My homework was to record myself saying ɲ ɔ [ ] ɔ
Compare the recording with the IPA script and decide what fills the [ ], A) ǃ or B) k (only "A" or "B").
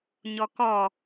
B